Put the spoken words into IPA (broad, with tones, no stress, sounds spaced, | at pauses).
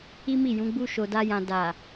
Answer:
i˦ m i˦˨ j ũ˨˦ ɡ͡b u˦ ʃ o˧ d a˦ j ã˧ d a˨